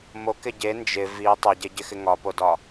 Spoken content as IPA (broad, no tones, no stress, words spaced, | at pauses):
mokɪ ɟe nd͡ʒɪ vi tˤɪɟeɟɪxɪ ŋɒpodɒ